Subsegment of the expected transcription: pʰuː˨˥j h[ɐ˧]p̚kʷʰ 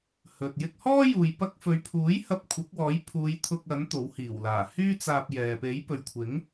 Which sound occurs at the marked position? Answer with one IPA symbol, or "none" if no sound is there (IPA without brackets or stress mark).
ɐ˧